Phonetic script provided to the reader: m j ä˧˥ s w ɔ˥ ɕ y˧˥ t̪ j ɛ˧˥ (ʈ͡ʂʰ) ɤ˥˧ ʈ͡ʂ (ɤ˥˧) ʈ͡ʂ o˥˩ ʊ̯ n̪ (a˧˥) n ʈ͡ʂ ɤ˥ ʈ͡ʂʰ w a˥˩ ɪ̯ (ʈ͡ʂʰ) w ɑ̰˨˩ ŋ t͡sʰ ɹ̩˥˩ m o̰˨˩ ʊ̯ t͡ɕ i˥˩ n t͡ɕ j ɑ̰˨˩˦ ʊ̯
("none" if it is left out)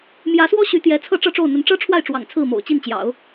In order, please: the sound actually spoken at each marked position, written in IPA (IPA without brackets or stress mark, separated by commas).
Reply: t͡sʰ, ɤ˥˧, ə˧˥, ʈ͡ʂ